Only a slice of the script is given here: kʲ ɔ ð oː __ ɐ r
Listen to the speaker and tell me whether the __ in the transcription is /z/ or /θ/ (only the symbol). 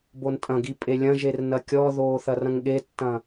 θ